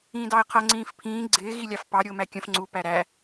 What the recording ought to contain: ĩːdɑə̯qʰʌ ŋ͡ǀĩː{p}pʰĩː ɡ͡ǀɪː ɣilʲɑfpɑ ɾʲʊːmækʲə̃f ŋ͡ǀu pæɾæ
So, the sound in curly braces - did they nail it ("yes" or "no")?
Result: no